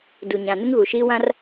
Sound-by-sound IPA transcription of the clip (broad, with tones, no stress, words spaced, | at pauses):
du˨ɲã˨ nɪ˦ŋɣu˨ʃiː˦ wã˦r